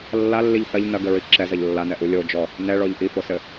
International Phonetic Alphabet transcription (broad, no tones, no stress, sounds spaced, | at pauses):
lː a lː i ʎ θ ɐ ʎ n ɐ ɡ ɘ ɹ i ǁ ɛ z ɐ ʎ lː a n ɛ ʔ u lʲ o d͡ʒ ɔ | n ɛ ɭ ɔ ʎ ʔ i f o s ɘ